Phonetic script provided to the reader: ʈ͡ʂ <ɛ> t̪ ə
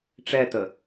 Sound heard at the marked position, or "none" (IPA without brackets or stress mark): ɛ